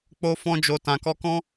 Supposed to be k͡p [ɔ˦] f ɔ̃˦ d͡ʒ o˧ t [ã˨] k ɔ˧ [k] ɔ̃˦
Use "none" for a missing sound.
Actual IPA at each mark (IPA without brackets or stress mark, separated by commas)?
o˦, ã˨, k